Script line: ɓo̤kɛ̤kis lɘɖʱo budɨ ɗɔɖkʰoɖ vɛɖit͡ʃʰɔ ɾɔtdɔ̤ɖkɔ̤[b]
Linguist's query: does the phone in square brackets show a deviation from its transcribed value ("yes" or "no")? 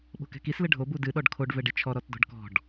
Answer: yes